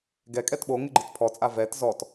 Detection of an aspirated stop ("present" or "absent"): present